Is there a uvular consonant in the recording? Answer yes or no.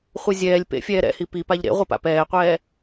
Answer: yes